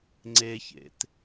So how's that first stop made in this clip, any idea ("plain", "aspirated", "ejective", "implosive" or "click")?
click